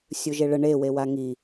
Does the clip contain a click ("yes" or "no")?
no